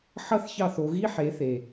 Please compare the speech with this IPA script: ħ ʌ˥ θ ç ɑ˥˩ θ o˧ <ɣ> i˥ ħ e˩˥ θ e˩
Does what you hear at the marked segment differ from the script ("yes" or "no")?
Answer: no